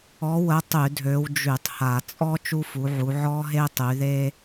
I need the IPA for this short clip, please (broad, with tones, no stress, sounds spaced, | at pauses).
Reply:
ɔ˨˦ w ə˨˦ tˤ y˧˩˧ dʱ ø˨˦ w d͡ʒ y˧˩˧ tˤ h a˧˩˧ t͡sʼ ɔ˥ t͡ʃ u˥ f u˨˦ ʕ u˨˦ ʕ ɔ˥ ɦ e˥ tˤ y˨˦ ð e˥